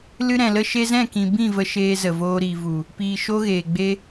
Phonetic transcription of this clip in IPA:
l ɨ˧ ɾ ɛ̃˨ l ə˧ ʃ e˧ z ɛ̃˦˨ k ĩ˧ b ĩ˦˨ v ə˧ ʃ eː˧ z ə˨ v oː˧ ɾ i˨ v u˨ | p iː˨ ʃ o˧ ɣ eː˨ ɡ͡b e˧

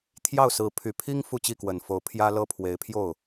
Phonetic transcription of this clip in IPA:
t̪ʰ j ɑ˥˩ ʊ̯ s ɹ̩˧˥ pʰ y˨˩ pʰ i˥ ŋ f u˥˧ t͡ɕ i˥˩ k w ə˨˩ n f o˧˥ ʊ̯ pʰ j ä˥ l ɤ˥ pʰ w e˧˥ ɪ̯ pʰ j o˥˩ ʊ̯

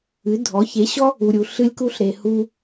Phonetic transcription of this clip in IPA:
ɨ˨˦ dʱ ɔ˨˦ ç e˨˦ ɕ ɔ˦ | u˨ ɾʲ u˨ ɬ ɨ˧ lʲ k u˧ ɬ ɾ e˨ h u˧

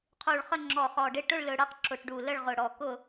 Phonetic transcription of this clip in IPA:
qʰ u˧˩ ɭ χ ə˥˧ ŋ͡ǁ ɔ˧˩ χ ɔ˧˩ ɖ ɪ˥˧ ʈ ʊ˥˧ ɭ l ɵ˧˩ ɽ ɜ˥˧ q ǁ ʊ˧˩ ʈ ɖ u˧˩ l ə˥˧ ɭ ʁ ʊ˧˩ ɽ ɔ˧˩ k ʊ˥˧

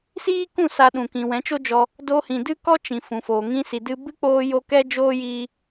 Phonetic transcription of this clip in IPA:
s iː˦ k ũ˦˨ s a˧ ɗ ũ˨ k ĩ˨ w ɛ̃˨˦ t͡ʃ o˦ d͡ʒ ɔ˧ | d oː˧ h ĩ˨ d ɨ˦ k ɔ˦ t͡ʃ ĩ˨ f ũ˨ f oː˨ ŋ ĩ˧ s i˨ d ɨ˧ b ɨ˦ k͡p oː˧ j o˧ k ɛ˦ d͡ʒ oː˦ j iː˧

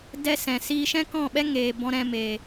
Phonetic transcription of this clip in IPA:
d ɛ˦ s ɛ̃˨ s iː˧ ʃ ɛ̃˦ k ɔ̃˦˨ ɓ ɛ˦ ŋ eː˨ b ɔ̃˧ ɾ ɛ̃˧ m eː˨

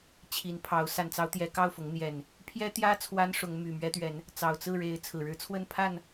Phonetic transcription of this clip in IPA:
t͡ɕʰ i˨˦ n pʰ ɑ˨˦ ʊ̯ s a˨˩ n t͡s ɑ˨˦ ʊ̯ t̪ j ɛ˨˦ k ɑ˥˨ ʊ̯ f ʊ˨˦ ŋ n̪ j ɛ˨˩ n | pʰ j ɛ˦ t̪ j ä˦ t͡sʰ w a˦ n ʂ ʊ˨˦ ŋ m y˨˩ m ɥ ɛ˦ t̪ ɥ ɛ˨˦ n | t͡s ɑ˨˩ ʊ̯ t͡s ɹ̩˥˨ ɻ e˨˦ ɪ̯ t͡sʰ ɹ̩˨˩ ɻ ɻ̩˦ t͡sʰ w ə˥˨ n pʰ a˥˨ n

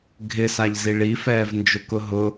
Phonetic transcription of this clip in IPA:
ɡʱ ɪ s a ʎ z i ɭ i f ɛː v n d͡ʒ ʊ k ʊ ɦ ʊ

